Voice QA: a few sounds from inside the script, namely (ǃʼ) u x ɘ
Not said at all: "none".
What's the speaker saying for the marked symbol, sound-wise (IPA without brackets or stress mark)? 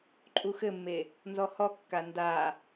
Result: ǃʼ